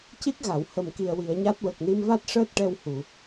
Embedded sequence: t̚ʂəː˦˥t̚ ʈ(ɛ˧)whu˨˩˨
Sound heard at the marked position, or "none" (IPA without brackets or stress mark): ɛ˧